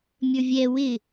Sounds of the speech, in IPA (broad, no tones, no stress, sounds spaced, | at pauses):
mʲ ə˞ vʲ ɛ w ɪ